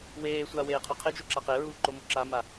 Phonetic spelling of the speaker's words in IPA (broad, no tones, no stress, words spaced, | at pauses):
weːsʷa weːqʰoqʰed͡ʒo ǁaqeɹuː ǃomuǁama